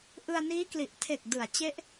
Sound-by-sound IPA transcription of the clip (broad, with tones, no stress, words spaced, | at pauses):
ʔɯ˧a̯niː˦˥kli˨˩ʔtʰe˨˩k̚ dɯ˩˦a̯t͡ɕe˦˥ʔ